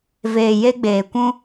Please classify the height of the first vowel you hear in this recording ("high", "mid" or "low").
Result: mid